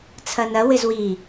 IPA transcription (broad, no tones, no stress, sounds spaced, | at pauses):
t͡sʰ ɐ n ɐ w ɪ z w i